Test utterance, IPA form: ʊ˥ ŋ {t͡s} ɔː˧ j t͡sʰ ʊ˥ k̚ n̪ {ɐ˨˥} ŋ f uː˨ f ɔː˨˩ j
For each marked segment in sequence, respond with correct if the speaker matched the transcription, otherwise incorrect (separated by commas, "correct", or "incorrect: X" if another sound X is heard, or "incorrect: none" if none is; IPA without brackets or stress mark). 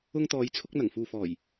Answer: incorrect: t̪, incorrect: ɐ˨˩